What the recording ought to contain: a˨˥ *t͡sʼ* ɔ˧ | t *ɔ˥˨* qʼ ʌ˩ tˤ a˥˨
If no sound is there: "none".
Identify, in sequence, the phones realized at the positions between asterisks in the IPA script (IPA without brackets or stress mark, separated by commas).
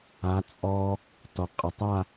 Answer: t͡sʼ, ɔ˩